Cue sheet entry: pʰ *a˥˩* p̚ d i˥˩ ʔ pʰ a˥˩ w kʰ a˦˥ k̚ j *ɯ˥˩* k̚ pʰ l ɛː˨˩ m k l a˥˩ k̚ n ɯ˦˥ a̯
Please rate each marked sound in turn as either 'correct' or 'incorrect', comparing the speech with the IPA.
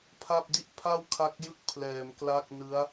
correct, incorrect: ɯ˦˥

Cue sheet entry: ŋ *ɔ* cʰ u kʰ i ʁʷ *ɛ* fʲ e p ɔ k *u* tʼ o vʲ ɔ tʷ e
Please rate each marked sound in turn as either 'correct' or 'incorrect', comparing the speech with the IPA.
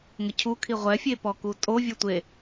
incorrect: ə, correct, correct

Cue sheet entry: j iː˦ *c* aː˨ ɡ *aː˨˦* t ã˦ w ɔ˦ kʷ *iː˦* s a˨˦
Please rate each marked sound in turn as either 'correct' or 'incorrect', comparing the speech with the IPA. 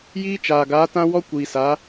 incorrect: t͡ʃ, correct, incorrect: iː˨

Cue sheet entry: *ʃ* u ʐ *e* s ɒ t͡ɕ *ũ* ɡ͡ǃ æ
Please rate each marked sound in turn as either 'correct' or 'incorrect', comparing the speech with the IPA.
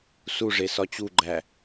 incorrect: s, correct, incorrect: u

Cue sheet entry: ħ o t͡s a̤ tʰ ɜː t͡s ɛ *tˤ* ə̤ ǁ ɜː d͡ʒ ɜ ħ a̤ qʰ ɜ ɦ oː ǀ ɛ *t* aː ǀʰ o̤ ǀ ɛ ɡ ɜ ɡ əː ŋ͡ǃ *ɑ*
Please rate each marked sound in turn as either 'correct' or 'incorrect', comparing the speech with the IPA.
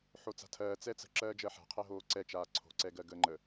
incorrect: t͡s, incorrect: t͡ʃ, incorrect: ə

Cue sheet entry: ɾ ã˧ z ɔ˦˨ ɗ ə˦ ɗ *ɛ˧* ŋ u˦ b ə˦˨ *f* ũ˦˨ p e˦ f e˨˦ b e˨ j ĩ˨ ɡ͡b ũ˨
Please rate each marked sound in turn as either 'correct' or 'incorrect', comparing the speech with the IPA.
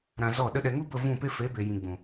correct, incorrect: v

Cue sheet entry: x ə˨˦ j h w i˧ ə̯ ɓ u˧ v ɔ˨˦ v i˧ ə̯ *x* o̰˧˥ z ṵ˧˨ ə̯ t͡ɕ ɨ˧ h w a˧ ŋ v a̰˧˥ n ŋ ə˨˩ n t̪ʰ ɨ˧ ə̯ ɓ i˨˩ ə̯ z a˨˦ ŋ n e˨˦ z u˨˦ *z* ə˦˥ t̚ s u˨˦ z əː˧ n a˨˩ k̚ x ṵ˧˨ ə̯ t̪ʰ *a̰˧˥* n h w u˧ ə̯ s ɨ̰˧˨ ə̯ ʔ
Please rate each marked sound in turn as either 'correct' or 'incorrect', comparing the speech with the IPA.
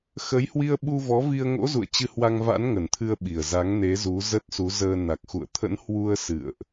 incorrect: ŋ, correct, incorrect: ə̰˧˥

